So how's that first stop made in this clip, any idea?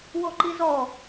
click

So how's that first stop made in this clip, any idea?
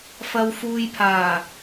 aspirated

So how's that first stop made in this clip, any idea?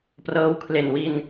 plain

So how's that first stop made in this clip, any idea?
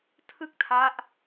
aspirated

